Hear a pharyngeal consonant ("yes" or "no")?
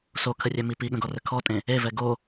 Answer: no